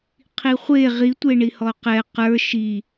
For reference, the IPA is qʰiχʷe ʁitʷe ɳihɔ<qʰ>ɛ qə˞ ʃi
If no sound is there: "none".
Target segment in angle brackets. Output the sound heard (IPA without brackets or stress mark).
q